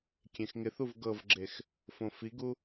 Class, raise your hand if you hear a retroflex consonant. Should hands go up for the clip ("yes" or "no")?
no